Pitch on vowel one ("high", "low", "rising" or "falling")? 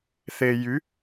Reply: low